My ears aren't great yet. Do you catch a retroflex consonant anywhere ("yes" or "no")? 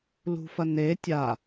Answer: no